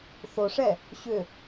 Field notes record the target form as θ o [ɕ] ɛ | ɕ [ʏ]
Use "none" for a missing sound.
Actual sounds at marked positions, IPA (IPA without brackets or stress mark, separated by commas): ʂ, ʏ